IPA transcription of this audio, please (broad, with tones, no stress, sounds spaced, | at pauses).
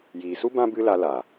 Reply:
j iː˨ s u˦ b ã˦ b ɨ˦ l a˧ l a˨